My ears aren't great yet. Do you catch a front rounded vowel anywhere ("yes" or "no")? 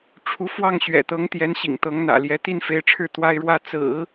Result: no